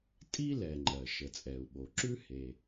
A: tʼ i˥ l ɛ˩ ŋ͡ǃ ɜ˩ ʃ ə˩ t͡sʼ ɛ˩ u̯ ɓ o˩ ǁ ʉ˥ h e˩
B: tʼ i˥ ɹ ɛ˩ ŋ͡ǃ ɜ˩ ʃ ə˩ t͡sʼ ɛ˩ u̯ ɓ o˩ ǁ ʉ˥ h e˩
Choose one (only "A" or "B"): A